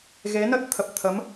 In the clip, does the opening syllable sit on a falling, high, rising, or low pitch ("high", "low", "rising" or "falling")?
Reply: rising